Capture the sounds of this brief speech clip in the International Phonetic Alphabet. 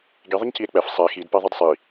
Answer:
ɡ i ðˤ ə ɲ c i e̯ k͡p ɛ f sˤ ɛ x i d p ɛ ðˤ i d sˤ i

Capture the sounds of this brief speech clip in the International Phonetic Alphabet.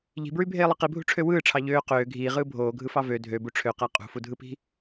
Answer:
ʎ i̤ b ɹ y bʱ eː lˠ ɯ q i bʱ ṳ ʈ͡ʂʰ ø w ɯː ʈ͡ʂʰ ɑ ʎ øː q øː ɡʱ iː ʁ ɯː bʱ oː ɡʱ ɯ f ɑ v ø dʱ ø b u ʈ͡ʂʰ ø q æ qʼ ṳ f u dʱ ɯ p i̤

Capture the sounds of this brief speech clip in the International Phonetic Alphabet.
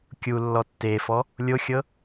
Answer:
kʲ u lː ɔ tː e f ɔ | lʲ o xʲ ɤ

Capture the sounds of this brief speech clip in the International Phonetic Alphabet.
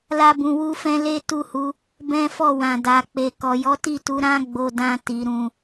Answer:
l a˦ b ũ˧ w u˦ f ɛ̃˦ l e˦ t u˦˨ h u˨˦ | b ɛ̃˦ f ɔ˦˨ w ã˨ d a˨ k͡p e˨ k ɔ˨ j ɔ˨˦ t i˦˨ t u˨˦ ɾ ã˦ ɡ͡b o˧ d ã˧ t i˨ ɾ ũ˨

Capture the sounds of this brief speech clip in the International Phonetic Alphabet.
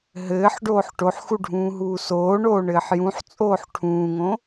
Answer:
ɦ ɘː ħ ɖ oː ħ ʈ o ħ x u ɖʱ ũː ɦ uː s oː ɳ oː ɳ ɘː ħ j ũ ħ t͡sʼ oː ħ ʈʰ ũː ŋ õ

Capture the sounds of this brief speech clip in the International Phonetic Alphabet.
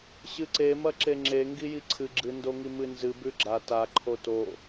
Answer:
ɕ ɨ ǀ e m ɐ ǁ e ŋ͡ǁ e ŋ ɡ i j i ǀʰ ɨ ɡ͡ǁ ɨ n d o ŋ i m ɨ n z ɨ b ʉ ɡ͡ǁ a t a ǃʰ o t o

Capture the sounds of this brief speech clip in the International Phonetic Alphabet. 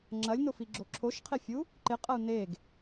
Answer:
ŋ͡ǁ ɐ lʲ n o f i ɡ͡ǁ o ǁʰ o ʃ qʰ e fʲ u | ǃ ɪ qʼ ɐ u̯ n e ɡ

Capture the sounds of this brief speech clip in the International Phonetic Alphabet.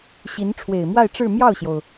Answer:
ɕ i˧˥ n ʈ͡ʂʰ w e˨˩ ɪ̯ m w a˥˧ ɪ̯ ʈ͡ʂ ɻ̩˥˧ m j ɑ˥˩ ʊ̯ ɕ j o˩ ʊ̯

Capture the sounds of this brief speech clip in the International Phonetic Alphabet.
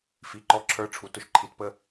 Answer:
f i˨ ǃ ɔ˦˨ ǁʰ ə˞˦ ʈ͡ʂʰ u˨˦ t ʊ˨ ʃ ǃʰ i˨ t p ə˦

